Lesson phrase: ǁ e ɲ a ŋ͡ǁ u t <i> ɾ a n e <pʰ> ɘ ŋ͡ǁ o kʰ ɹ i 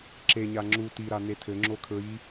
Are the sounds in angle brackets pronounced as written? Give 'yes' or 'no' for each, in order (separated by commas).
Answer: yes, no